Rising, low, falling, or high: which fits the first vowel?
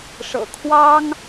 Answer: low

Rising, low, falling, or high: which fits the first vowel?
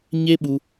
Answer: high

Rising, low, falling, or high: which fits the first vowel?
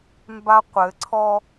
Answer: high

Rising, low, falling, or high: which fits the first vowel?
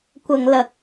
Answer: low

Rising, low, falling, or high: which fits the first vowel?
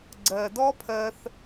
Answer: low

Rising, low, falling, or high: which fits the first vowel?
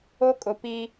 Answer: high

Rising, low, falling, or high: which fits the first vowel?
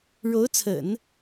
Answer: rising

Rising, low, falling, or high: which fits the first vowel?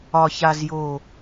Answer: low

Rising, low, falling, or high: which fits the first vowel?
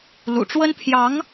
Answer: low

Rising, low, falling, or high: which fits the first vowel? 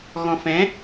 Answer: low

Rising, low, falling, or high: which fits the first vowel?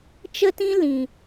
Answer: high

